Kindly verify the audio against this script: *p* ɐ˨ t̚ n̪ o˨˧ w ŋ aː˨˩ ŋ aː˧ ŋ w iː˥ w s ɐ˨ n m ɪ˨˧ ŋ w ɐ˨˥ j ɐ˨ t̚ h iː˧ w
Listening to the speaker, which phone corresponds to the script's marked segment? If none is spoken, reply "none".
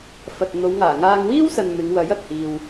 f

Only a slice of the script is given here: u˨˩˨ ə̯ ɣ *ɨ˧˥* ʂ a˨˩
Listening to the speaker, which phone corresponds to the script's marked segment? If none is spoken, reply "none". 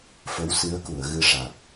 ɨ˧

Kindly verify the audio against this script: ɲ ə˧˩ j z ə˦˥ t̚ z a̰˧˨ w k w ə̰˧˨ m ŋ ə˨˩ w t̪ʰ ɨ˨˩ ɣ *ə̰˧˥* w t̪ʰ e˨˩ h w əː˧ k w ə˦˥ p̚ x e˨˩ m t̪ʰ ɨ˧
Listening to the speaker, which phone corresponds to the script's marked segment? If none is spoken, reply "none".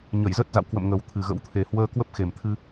ə̰˧˥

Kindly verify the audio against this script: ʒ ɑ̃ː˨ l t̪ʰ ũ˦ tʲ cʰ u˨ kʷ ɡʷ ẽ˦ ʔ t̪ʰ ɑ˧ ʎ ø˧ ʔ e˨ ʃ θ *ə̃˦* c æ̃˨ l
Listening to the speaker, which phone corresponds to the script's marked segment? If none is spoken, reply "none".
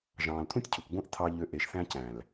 æ̃˦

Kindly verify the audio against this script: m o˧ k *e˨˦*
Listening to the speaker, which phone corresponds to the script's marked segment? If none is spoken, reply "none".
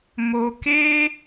e˦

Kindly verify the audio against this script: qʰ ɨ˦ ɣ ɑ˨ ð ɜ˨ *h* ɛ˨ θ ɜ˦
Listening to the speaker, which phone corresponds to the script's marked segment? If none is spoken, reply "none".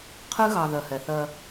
h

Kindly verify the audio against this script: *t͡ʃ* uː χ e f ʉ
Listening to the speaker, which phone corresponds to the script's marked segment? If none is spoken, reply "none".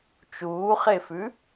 t͡ʃ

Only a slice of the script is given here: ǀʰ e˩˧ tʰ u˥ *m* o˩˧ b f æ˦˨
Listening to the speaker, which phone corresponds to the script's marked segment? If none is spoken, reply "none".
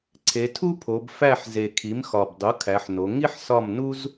pʰ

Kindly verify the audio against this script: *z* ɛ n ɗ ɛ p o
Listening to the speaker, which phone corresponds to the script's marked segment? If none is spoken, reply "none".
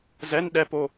z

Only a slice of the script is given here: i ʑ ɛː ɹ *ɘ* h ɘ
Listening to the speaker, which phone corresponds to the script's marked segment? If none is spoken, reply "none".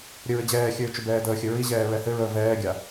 ɛ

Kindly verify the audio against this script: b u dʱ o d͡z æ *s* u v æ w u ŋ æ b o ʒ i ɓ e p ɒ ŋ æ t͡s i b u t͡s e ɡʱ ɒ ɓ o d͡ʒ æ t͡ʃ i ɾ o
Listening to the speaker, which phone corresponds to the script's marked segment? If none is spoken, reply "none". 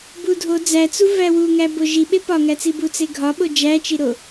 t͡s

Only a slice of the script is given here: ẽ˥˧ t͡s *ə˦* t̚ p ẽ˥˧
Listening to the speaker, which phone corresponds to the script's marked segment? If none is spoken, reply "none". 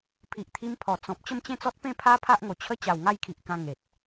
ɔ˦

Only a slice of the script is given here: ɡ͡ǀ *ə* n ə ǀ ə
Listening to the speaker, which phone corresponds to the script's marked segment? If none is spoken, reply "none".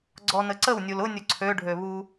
ɔ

